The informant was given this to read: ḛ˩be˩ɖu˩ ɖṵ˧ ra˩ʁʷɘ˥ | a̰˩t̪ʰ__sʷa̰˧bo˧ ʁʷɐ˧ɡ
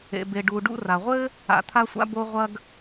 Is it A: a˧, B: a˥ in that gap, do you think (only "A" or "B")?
A